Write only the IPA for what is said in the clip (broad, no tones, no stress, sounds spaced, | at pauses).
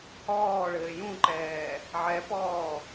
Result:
h ɔː ɭ ɘː j ũ ǃ ɛː | ʕ ɛ p ɔː